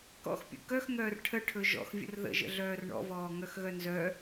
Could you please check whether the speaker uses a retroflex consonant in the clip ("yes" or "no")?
yes